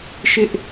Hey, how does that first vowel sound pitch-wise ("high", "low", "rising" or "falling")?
high